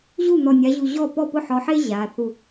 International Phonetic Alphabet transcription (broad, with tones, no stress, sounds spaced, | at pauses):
ʑ u˥˩ n̪ ɔ˧˩ nʲ a˨˦ ʑ u˧˩ ʑ ɔ˥˩ p ɔ˥˩ p ʊ˥˩ ħ ɔ˨˦ ħ e˥ ʑ a˩˧˩ θ u˧˩